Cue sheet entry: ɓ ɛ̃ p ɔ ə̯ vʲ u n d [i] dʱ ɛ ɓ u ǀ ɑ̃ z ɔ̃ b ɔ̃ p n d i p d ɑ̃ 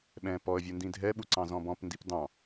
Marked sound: incorrect: ĩ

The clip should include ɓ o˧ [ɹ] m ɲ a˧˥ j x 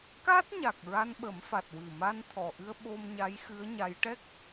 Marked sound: incorrect: none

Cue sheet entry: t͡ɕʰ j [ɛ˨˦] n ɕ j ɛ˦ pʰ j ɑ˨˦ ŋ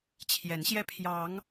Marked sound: correct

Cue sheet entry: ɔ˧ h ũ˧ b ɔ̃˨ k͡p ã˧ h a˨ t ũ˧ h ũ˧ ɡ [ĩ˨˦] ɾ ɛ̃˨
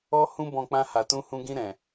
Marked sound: incorrect: ĩ˧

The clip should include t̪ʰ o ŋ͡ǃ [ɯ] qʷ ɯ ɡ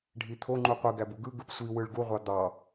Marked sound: incorrect: u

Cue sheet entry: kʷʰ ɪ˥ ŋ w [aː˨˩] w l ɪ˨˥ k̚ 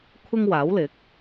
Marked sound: incorrect: aː˨˥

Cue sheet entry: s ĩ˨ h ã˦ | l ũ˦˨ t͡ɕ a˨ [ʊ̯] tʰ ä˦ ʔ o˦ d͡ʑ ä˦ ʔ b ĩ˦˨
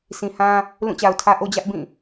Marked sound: correct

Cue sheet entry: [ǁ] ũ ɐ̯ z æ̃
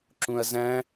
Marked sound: correct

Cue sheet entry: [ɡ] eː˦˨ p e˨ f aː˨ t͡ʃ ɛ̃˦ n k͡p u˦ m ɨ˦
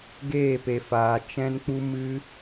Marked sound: correct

